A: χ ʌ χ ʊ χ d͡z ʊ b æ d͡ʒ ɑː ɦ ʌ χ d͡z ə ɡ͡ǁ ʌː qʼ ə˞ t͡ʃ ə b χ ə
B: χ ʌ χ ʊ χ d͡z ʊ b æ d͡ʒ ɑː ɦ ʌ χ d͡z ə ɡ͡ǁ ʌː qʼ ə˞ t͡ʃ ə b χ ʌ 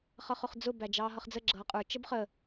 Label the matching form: A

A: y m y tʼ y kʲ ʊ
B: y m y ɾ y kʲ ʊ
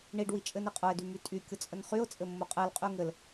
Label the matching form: A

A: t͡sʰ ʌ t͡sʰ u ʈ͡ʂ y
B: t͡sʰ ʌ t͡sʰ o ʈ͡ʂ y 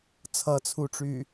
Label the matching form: A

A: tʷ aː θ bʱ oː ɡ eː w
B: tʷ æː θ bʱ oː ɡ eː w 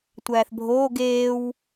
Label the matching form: B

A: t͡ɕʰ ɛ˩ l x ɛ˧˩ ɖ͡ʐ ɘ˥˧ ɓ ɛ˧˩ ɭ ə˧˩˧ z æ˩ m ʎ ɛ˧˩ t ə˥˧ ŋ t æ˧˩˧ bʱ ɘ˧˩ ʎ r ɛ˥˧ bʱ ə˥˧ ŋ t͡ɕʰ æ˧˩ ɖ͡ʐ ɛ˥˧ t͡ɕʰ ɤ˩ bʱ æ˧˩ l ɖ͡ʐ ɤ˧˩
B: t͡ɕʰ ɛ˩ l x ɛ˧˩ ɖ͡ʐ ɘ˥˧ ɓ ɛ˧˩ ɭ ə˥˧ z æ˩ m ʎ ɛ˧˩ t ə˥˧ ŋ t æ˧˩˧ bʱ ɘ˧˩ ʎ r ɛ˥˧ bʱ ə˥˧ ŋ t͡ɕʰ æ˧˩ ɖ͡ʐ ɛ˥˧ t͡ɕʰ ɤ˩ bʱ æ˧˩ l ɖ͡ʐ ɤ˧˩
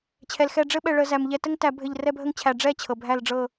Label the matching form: A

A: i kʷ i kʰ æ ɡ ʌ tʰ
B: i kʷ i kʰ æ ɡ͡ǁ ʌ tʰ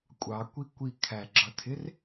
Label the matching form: B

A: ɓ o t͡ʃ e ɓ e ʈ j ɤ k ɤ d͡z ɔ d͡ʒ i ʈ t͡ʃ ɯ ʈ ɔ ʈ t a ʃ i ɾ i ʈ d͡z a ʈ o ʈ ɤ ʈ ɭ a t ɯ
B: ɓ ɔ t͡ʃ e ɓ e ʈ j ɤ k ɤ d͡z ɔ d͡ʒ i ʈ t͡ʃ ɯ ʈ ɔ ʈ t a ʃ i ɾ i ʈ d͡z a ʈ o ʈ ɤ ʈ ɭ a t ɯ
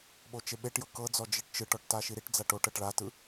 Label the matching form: A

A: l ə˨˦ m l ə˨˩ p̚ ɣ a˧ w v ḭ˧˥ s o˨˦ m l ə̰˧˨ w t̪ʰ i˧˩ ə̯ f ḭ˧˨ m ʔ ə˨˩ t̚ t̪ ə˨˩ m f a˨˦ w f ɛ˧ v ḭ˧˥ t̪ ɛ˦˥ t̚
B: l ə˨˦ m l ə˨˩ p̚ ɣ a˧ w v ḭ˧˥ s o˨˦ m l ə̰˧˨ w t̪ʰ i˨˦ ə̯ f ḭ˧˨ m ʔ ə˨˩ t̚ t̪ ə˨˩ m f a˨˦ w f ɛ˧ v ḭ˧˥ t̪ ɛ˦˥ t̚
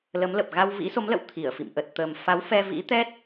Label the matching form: A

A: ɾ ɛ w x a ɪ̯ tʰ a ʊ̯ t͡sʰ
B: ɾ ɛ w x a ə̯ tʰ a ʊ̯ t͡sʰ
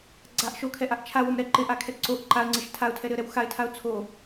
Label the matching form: A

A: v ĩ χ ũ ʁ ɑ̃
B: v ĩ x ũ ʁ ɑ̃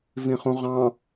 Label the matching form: A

